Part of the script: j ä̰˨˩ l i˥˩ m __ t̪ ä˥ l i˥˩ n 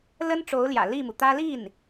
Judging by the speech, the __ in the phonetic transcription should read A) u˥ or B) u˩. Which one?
B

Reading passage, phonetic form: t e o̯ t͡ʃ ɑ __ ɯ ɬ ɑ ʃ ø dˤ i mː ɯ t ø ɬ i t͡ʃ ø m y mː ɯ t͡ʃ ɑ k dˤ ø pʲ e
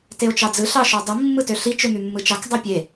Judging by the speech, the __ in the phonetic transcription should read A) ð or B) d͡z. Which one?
B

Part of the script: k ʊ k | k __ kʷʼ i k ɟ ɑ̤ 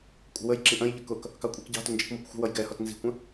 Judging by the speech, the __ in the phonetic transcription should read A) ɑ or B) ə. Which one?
A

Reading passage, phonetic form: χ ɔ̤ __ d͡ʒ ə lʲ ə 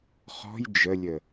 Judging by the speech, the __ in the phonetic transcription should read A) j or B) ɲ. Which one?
A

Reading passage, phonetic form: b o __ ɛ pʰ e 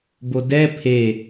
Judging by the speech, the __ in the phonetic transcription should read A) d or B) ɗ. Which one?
A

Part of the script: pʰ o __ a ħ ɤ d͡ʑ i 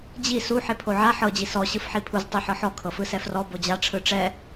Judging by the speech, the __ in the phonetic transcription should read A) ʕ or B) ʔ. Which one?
A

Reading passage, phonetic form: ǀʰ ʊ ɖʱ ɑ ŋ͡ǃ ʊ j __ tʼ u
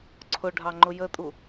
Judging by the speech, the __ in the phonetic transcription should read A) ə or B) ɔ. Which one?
A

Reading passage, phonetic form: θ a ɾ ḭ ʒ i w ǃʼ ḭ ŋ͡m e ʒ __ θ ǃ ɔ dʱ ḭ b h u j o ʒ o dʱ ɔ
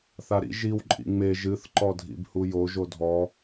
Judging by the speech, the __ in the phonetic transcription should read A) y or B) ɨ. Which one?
B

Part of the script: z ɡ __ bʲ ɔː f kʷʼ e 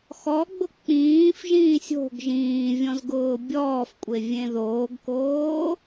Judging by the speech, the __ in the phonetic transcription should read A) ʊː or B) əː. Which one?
A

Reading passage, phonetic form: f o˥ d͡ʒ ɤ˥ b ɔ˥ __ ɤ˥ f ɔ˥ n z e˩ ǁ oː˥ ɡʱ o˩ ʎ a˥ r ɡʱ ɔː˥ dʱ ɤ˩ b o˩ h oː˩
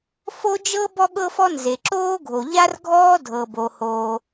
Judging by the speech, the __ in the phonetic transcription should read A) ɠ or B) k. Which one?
A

